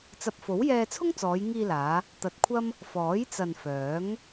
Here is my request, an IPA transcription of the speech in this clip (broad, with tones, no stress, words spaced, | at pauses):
t͡sɐ˨p̚fo˨˥wjɛː˧ t͡sʰʊ˥ŋt͡sɔː˨˧jŋiː˧laː˨˧ | t̪ɐ˨t̚kʷʰɐ˥m | fɔː˨˥jt͡sɐ˨nfœː˨˥ŋ